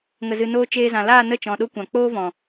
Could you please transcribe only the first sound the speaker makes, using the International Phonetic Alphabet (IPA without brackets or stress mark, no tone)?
ŋ